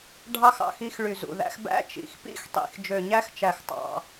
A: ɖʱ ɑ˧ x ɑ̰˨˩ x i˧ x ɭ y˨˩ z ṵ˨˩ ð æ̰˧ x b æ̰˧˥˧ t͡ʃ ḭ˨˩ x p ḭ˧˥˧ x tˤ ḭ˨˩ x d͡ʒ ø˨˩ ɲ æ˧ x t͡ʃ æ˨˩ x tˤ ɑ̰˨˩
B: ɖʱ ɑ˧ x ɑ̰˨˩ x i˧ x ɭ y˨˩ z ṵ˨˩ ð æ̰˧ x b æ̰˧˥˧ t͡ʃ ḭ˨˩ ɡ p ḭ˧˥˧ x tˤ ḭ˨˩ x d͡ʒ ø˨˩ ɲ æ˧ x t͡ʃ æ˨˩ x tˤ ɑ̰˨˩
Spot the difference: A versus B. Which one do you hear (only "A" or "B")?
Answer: A